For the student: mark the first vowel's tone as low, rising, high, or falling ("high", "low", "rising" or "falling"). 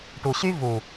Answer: low